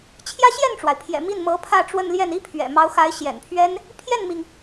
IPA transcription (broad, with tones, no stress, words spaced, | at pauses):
t͡ɕʰjä˥ɕjɛ˥˩nʈ͡ʂwa˩ɪ̯pʰjɛ̰˨˩ mi˥˩nmɤ˧˥ pʰä˥˧ʈ͡ʂwə˥˧nljɛ˥˩n i˥pʰɥɛ̰˨˩mɑ˧˥ʊ̯xa˧˥ɪ̯ ɕjɛ̰˨˩npʰɥɛ˥n | pʰjɛ˥˩nmi˩ŋ